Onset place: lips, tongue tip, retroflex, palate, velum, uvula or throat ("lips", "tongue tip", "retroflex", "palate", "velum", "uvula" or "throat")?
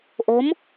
throat